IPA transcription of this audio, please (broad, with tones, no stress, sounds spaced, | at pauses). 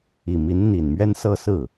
i˨˩ m i˧˥ n n̪ i˨˩ n m ɥ ɛ˥ n s ɤ˥˧ s ɹ̩˥˩